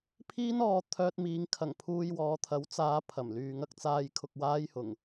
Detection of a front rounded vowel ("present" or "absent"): present